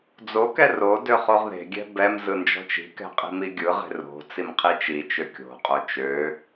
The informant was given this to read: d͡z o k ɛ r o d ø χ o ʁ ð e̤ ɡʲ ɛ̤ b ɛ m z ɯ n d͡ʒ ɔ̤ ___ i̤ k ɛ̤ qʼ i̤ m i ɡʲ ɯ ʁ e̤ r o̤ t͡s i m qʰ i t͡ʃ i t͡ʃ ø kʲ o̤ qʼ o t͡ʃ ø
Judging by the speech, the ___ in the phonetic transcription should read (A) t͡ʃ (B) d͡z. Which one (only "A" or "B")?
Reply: A